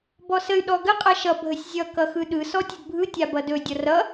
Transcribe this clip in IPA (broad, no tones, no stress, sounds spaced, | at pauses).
b ɔ s ə y̯ ɗ ɔ ɡ ə qʼ ʌ ʃ ʌ bʱ ə sʲ zʲ ʌ k ʌ x ɯ ɗ ɯ s ɔ tʲ ə d bʱ ɯ tʲ a b ʌ d ɵ dʲ ʌ r ʌ